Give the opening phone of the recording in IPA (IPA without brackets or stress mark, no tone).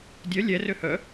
dʲ